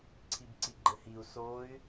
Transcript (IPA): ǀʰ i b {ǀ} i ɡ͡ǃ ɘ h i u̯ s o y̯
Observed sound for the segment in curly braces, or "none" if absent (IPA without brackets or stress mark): ǀ